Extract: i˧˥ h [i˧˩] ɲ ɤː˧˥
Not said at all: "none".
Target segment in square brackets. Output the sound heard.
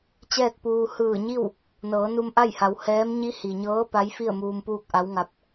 i˩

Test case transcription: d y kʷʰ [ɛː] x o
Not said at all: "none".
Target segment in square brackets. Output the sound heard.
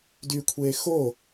eː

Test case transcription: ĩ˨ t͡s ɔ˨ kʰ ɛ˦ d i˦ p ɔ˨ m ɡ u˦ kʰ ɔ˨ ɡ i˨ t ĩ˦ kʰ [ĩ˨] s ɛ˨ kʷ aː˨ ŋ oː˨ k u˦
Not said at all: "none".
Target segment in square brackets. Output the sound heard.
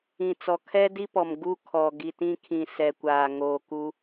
ĩ˨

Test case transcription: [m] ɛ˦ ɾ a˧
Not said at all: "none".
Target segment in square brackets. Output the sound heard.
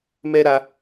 m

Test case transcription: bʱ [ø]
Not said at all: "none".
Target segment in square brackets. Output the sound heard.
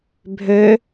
ø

